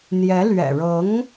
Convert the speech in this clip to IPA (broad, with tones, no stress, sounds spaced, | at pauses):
n̪ j ɛ˧˥ l ɥ ɛ̰˨˩ ɻ ɤ˧˥ ŋ